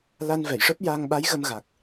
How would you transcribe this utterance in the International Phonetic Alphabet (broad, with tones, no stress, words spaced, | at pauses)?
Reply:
la˧nvɛ˨˩˨jʂəː˦˥p̚jaː˧ŋ ɓa˧˥jɣə˧mɣa˨˩k̚